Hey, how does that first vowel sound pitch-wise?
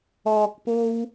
low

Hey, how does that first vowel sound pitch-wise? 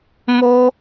high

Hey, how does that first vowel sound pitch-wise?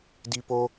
high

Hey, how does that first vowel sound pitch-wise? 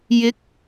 rising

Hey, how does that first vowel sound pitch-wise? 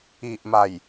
low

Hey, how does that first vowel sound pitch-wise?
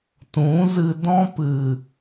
rising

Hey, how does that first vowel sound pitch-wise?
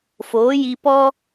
rising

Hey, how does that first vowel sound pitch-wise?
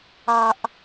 low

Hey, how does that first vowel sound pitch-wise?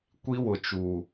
high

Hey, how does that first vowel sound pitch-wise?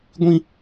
high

